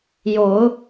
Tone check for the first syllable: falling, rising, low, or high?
rising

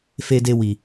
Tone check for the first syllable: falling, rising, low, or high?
high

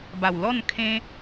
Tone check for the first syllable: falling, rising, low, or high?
low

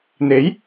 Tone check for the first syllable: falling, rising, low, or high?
rising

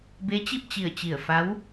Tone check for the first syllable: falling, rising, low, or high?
rising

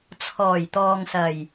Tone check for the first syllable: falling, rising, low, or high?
low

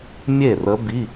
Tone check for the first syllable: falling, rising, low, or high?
falling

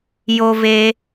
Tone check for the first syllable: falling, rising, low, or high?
high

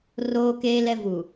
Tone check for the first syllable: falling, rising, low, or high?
high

